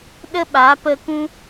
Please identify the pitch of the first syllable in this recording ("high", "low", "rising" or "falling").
high